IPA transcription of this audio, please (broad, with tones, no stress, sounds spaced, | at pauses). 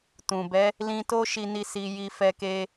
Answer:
t ũ˨ b ɛ˨˦ | l ĩ˧ t o˦ ʃ i˦ n i˦ s i˧ j i˧ f ɛ˧ k e˧